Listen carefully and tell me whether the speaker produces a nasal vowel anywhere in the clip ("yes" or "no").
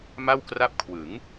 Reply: no